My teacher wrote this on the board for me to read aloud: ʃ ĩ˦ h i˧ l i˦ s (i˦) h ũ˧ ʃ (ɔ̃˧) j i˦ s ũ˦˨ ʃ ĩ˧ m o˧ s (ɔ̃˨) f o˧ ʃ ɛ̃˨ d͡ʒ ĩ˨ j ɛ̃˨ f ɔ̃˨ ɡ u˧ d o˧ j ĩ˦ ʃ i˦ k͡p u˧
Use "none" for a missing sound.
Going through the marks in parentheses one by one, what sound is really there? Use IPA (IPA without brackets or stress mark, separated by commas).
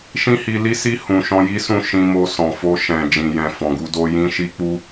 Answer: i˦, ɔ̃˦, ɔ̃˨